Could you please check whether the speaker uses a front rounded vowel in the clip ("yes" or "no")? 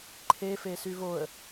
yes